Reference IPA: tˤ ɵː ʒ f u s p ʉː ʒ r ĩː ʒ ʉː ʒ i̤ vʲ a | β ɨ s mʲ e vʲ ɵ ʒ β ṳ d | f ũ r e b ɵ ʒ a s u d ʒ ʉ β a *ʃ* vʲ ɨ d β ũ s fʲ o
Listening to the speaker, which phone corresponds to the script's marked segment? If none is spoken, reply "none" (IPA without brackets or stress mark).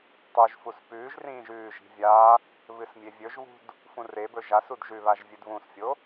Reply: ʒ